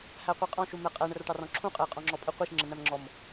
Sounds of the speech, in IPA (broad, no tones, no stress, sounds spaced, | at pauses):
h æ qʷ i qʼ ɔ̃ ʃ u m ɛ qʼ æ ɳ ə r ʈ ɑ r ɔ̃ ǁʰ ũ qʼ ɛ ɪ̯ qʼ ɔ̃ ŋ͡ǁ ɔ pʼ ə qʷ i ʃ ŋ͡ǁ ə n̪ æ m ŋ͡ǁ ɔ m